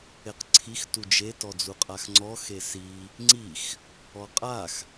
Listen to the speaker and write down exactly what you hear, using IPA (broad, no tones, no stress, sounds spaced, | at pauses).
e q ǀʰ i x t u d͡ʒ e t ɔ d͡z u qʼ a x ŋ͡ǀ ɔ x e s i | ŋ͡ǀ i x | ɔ qʼ a x